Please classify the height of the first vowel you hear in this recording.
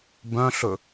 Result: mid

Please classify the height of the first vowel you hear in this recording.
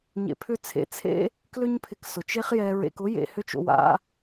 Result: mid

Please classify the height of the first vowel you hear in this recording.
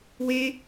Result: mid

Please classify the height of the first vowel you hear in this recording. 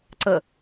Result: mid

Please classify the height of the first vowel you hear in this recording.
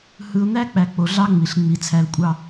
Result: high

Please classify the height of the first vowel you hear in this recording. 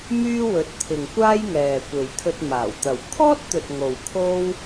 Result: high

